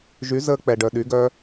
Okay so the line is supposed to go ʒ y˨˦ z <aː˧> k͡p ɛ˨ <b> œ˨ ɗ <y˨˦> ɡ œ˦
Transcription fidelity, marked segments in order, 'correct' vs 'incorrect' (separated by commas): incorrect, incorrect, correct